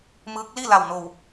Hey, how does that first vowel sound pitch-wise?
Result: rising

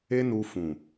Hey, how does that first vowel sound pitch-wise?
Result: high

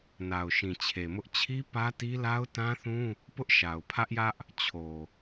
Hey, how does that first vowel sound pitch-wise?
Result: low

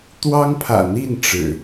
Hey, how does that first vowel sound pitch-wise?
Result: high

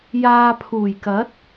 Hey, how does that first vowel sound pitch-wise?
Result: low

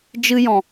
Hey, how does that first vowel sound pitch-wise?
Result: high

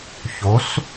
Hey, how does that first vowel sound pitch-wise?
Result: rising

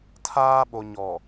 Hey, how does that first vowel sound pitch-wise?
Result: high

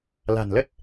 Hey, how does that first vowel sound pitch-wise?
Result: low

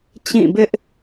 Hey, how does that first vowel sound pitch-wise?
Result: falling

